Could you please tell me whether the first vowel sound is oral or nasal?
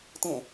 nasal